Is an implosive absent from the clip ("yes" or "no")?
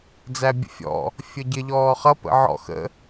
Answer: yes